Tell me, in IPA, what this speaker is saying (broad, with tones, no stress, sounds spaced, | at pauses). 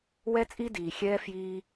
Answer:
w ɛ˥ t͡sʼ i˥ d iː˧ xʲ ɛː˥ f j iː˥